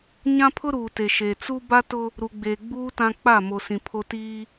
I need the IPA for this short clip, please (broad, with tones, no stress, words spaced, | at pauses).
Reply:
ɲã˦pʰʊ˦ɾuː˨te˨ ʃe˨t͡su˦ ba˦tʊ˦ | ɾu˨ɡ͡beː˨ ɡ͡buː˦ tã˦ k͡pa˦˨ mo˨sĩ˨ pʰo˦ tiː˦